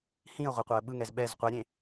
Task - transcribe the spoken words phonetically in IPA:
hĩə̯ ʁʷɛqʷɤə̯ɓɯŋɛz ɓɛz qʷɛɾʲẽ

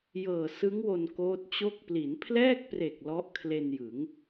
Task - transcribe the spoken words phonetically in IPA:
jɤː˨˩ sɯ˦˥ŋwo˧n koː˦˥t̚t͡ɕo˥˩k̚ pli˩˦npʰlɛː˥˩k̚pre˨˩k̚ lɔ˦˥ʔkʰle˧njɯ˩˦ŋ

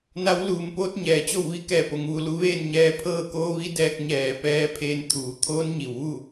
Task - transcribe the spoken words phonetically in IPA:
na˧˥wluː˧˩mpoː˧˥t̚ ɲɛː˩˧t͡ɕo˥˨wʋi˧˥kɛː˧˩ po˩˧ŋʋu˩˧lu˧ ʋeː˥˨nɲɛː˧ pʰɤː˥˨koː˧˥ʋi˧˥dɛː˧k̚ ɲɛː˧˩ pɛː˧˥ pʰeː˧nt̪ʰuː˩˧ t̪ʰoː˧˥nɲi˩wʋu˥˨

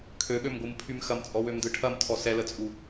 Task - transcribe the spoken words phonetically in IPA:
kʰøɠømɡʷɯmpʰym xɐmt͡sʼɔwømdɯ ʈʰɐmtʰɔ sɛlət͡sʼu

